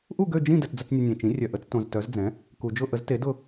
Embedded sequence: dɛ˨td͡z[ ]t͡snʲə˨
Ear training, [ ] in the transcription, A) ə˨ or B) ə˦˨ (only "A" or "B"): B